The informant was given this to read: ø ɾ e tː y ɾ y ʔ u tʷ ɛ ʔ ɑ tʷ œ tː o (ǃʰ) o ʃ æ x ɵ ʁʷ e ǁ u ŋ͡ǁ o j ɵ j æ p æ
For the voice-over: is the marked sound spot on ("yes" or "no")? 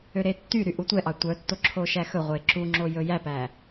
no